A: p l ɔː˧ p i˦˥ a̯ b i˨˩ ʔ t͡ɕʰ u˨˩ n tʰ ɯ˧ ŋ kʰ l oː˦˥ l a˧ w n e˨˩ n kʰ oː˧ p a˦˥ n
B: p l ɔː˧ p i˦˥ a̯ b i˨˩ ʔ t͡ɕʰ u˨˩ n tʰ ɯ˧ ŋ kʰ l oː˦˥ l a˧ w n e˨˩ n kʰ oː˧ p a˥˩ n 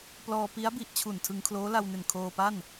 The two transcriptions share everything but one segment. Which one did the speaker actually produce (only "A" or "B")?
B